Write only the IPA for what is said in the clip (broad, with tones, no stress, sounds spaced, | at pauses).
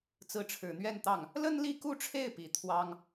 t͡s ɹ̩˧˥ ʈ͡ʂʰ ɻ̩˨˩ n̪ ɥ ɛ˥˧ n t̪ ɑ˥˩ ŋ | l ə˥ n l i˥˧ k u˥˧ ʈ͡ʂʰ e˥˩ ɪ̯ p i˨˩ t̪ʰ w ɑ˥ ŋ